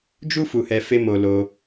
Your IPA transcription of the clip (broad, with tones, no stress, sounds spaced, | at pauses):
d͡ʒ u˦ f u˧ h ɛ˧ f e˦ m o˧ l o˧